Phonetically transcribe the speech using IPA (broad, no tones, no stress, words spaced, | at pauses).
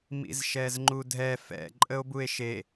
mḭzʃɛzŋ͡ǃudʱɛ fɛ̰ ǃʼəo̯bue̯ʃe